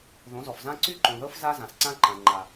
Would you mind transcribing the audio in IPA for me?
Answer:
ð õ˨˦ z ɔ˨ f z ã˦ ǀ y˦ ǃ õ˨ ð ɤ˦ f z a˦ z ã˨ s ǀ ã˦ ǃ ã˨ ŋ͡ǃ a˨

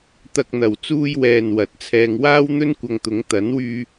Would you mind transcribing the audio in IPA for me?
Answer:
t̪ ɐ˧ k̚ n̪ ɐ˨ w t͡s uː˧ j w ɛː˨ n w ɐ˨˥ t̚ t͡sʰ ɛː˧ ŋ w aː˥ w n̪ ɵ˥ n kʷ ɐ˧ ŋ t̪ ʊ˨˥ ŋ t̪ ɐ˨˥ n w yː˧

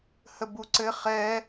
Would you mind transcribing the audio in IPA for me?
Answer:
h ə b u ǀ ɘ χ ɛ

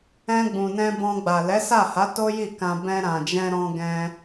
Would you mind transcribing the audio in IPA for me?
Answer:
ɛ̃˧ ɡ͡b ũ˨ n ɛ̃˧ b ɔ̃˧ ɡ͡b a˨ l ɛ˨˦ s a˦˨ h a˨˦ t o˦ j i˦˨ k ã˧ b ɛ̃˧ ɾ ã˨ d͡ʒ ɛ̃˧ ɾ ɔ̃˧ ɡ ɛ̃˧

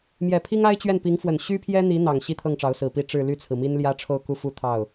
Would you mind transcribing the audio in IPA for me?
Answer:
m j ɛ˨˩ pʰ i˥ ŋ a˥ ɪ̯ t͡ɕ ɥ ɛ˥˩ n p i˧˥ ŋ f w ə˨˩ n ɕ y˥ pʰ j ɛ˥ n̪ i˧˥ n̪ ɑ˨˩ ŋ ɕ i˥ t̪ʰ ɤ˥˩ ŋ ʈ͡ʂ ɑ˧˥ ʊ̯ s ɹ̩˨˩ p i˥ ʈ͡ʂ ɻ̩˥˧ l y˥˩ t͡sʰ ɹ̩˩ m i˥ n l j ä˥ ʈ͡ʂʰ o˥˧ ʊ̯ k u˥˧ f u˥˧ t̪ʰ ɑ˥˩ ʊ̯

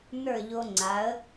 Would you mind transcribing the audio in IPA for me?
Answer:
n ə˞˥˩ ʎ o˧ ŋ͡ǀ a˩˥ ə̯

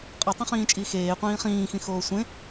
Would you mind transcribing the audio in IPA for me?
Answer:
qʼ ʌ tˤ õ χ ĩː t͡ʃʼ iː x eː qʷ ĩː χ ĩː x ĩ x oː sʷ ẽ

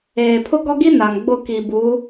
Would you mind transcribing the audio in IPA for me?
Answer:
eː˨ pʰ ʊ˦ ɡ ɔ˦ ɡ i˦ n a˨ ŋ ɡ͡b ʊ˦˨ k i˨ b u˨˦

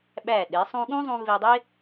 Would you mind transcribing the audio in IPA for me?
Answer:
ɓ æ˧˩ ɗ e˩˧ sˤ ũ˧ ɠ ũ˥ zˤ ũ˧ v e˧ dˤ e˥

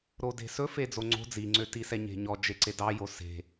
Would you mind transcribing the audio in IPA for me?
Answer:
ɾ o d e̤ s ɵ f e d͡z o ŋ͡ǀ o̤ d͡z i ŋ͡ǀ ø t i s ɛ ɲ e̤ ɲ ɔ d͡ʒ e ǀ e d ɑ j o s e̤

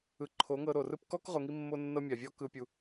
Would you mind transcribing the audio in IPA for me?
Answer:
ɯ˨ ǃʰ o˨˦ ŋ ɤ˧ ɾ o˨ r ɯ˦ p k ɔ˦ k ʁ o˨ ŋ i˧ mː o˧ nː ɤ˧ mʲ a˨ vʲ ɔ˦ k ɯ˧ pʲ u˧

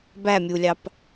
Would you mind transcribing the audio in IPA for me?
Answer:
b æ mʲ u lʲ ɑ p

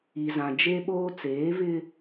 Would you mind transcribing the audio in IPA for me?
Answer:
i˨ z ã˨ d͡ʒ e˦ ɓ oː˦ t͡s eː˨˦ v ɪ˦

